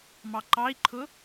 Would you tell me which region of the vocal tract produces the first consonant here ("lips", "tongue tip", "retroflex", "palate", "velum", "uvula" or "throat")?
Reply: lips